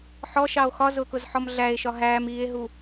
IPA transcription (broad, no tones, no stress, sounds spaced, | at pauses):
ħ ɔ ʃ ɑ o̯ x ɒ z ʊː k ʊ z ħ ɔ m ɮ æ e̯ ʃ ɒ ɦ æː m iː e̯ ɦ u